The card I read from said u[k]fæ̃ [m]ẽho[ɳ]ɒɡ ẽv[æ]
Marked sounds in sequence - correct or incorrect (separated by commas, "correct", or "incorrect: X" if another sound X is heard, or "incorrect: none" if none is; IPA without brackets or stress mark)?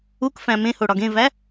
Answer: correct, correct, incorrect: ɽ, correct